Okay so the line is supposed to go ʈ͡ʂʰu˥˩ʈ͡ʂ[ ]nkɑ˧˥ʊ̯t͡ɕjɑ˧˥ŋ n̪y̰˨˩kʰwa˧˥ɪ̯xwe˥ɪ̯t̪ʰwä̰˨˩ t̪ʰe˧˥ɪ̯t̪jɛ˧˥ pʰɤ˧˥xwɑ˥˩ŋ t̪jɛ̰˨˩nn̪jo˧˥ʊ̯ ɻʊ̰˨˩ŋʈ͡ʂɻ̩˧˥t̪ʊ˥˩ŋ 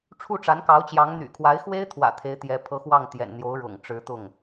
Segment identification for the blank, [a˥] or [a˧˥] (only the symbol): a˧˥